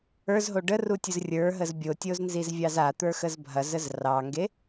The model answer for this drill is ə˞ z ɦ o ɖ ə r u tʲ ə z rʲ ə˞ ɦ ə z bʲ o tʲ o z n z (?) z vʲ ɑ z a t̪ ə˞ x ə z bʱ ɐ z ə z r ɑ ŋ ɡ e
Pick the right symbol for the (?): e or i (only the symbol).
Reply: i